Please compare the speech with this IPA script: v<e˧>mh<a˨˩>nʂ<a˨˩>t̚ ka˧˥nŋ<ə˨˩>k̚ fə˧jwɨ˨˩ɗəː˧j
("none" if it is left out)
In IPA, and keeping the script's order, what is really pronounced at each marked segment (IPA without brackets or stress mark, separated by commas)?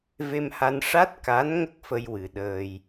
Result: e˧, a˧, a˦˥, ə˦˥